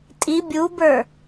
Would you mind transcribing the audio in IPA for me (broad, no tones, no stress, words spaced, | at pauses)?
tʼi bʲubə˞